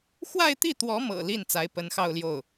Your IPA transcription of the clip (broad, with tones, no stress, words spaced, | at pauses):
xwa˥˧ɪ̯t̪i˥˩t̪wɔ˧˥mɤ̰˨˩ li˥˩n t͡sa˧˥ɪ̯pə˧˥nxɑ˥˧ʊ̯ljo˥˩ʊ̯